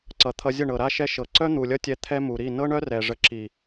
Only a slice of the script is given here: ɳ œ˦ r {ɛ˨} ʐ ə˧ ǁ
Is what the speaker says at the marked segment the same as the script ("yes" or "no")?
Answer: yes